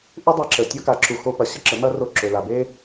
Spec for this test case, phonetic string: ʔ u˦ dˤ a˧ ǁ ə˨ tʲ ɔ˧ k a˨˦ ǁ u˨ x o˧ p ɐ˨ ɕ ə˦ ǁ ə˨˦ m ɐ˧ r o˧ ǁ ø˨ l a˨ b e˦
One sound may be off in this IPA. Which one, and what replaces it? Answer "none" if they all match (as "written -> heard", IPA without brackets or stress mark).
none